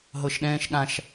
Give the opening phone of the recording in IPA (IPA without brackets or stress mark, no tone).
ɦ